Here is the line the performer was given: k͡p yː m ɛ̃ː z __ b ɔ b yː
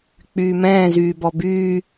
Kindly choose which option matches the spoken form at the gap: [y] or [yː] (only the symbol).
yː